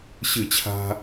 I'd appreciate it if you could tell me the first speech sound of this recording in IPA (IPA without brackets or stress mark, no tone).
ɕ